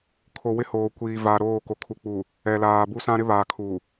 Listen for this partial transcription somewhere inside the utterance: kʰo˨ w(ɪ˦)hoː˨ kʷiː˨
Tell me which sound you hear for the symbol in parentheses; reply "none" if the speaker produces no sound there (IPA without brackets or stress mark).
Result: ɪ˦